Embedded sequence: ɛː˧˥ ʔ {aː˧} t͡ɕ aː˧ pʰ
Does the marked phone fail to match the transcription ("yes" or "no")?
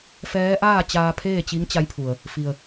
yes